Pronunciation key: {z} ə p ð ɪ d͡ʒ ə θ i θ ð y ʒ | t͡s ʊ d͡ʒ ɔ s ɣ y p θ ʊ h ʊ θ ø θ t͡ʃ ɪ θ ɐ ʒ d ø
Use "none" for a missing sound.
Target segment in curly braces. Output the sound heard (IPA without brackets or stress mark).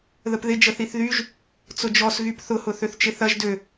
ð